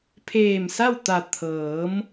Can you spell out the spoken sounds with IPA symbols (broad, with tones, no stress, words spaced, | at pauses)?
pʰeː˧˩msa˥˨w t̪a˧˩ t̪ʰɤː˩˧m